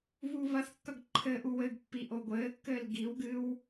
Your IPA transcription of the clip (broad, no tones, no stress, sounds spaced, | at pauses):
β uː β ɐ θ kː ɐ ɡ ǃʰ ɘ ʔ u w ɘ ɡ pː i ʔ o ɡʷ ɘː kː ɘː l ɡ i w ɡ ɨ w